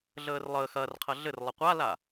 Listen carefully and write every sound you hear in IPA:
ɮəːrlˠəːx ɐrqʰɐ ɮɘrlˠʌ qʷala

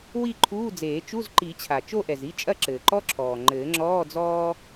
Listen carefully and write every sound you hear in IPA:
wi˥˧ǃʰuː˧˥˧d͡zeː˨˩˦ t͡ʃu˧˥˧zǃi˨˩˦t͡ɕʰa˩ t͡ʃo˥˧ʔɛ˩zi˧˥˧ t͡ʃʼɐ˥˧ǁɘː˩ǃɔ˥ǁʰɔː˩ ŋ͡ǃɘː˨˩˦ŋ͡ǁɔː˧˥˧ d͡zɔː˥

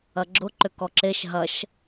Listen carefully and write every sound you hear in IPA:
ɐɡ͡ǁʊ ǃʏkɔǁeʃ ɦɐʃ

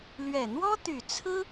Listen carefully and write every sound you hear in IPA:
lɥɛ˨˩n̪wɔ˥t̪y˨˩t͡sʰɹ̩˥

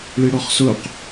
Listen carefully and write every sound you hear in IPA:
ɭiɽɔχsʊq

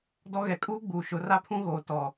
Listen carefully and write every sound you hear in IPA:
dɔ˦ɣɛ˨˦ kʼuː˦ɡ͡buː˨ʃʊ˨˦ ra˦pʰũ˦ɣoː˨ tɔ˨

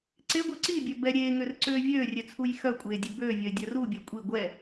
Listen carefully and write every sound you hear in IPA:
ǀeɡʷœ ǀibʲœ bɛ ɾʲeːŋørǀøː vʲøːrʲøt͡sʰuj xœkʷʼeːdʲø bøːvʲœɪ̯dʲœ rubʲɛ kʷʼi ɡʷɛ

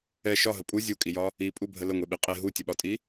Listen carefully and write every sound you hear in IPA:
ɛ ʃɒɦə pʼu zʲukʼijɒ | ipʼubʱə ləŋʷeɓi qʼe ɦutʲəɓɒtʼi

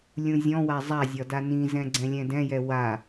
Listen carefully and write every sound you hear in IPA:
lʲũzʲɔ̃wa zˤazʲɒ danĩzɛ̃ ɡ͡ǀɛ̃lʲɛ̃dɛ̃jɛ wa

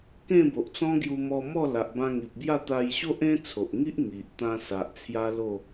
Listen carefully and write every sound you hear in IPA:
kẽ˥˧bo˨ʔ t͡sɔ̃˦ɡju˧mɔ˧mɔ˥˧ la˨ʔbã˧ŋi˨p̚bja˥˧ t̪a˧jɕo˦ʔẽ˦ t͡sʰo˨ʔŋi˦ʔ ŋi˨ʔt̪ã˧sa˨ʔ t͡sʰja˦lo˥˧

